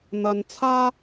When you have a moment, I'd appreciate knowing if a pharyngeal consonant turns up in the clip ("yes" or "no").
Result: no